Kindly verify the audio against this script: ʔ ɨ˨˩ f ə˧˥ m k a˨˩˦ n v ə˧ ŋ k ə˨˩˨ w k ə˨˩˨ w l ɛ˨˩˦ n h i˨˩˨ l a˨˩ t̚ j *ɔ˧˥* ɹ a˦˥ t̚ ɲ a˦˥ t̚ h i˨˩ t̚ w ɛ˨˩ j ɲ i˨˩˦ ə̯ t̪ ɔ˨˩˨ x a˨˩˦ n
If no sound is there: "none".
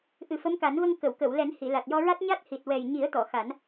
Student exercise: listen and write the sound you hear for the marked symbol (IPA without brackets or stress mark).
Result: ɔ˧